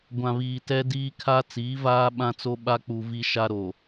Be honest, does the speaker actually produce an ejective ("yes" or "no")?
no